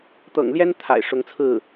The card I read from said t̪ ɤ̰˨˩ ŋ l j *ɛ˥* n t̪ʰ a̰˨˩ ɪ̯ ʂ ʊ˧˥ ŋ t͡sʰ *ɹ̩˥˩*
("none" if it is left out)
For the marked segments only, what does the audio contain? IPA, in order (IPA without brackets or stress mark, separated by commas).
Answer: ɛ˥, ɹ̩˥˩